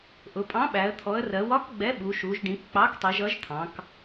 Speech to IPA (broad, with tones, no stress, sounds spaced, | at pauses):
ʔ ʊ˩˧ pʼ ɑ̃˨˥ ɓ æ˩˧ ə̯ t̪ʰ ɔ˩˧ ə̯ r ɜ˩˧ w ɒ˨˥ k ɡ͡b ɛ˨˥ ɓ u˩˧ ʃ u˩˧ ʒ ɖ ĩ˩˧ k k͡p ɑ˨˥ k tˤ i˩˧ ʒ ʌ˨˥ ʒ t̪ʰ ɑ̃˩˧ k